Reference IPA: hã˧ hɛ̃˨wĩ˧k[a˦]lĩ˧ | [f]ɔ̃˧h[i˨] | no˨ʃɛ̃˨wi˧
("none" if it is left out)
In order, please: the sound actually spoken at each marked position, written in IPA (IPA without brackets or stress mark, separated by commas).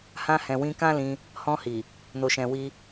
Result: ã˦, h, i˨